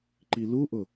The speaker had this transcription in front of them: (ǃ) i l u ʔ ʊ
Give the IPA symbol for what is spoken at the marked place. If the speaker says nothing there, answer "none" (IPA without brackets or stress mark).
ǃ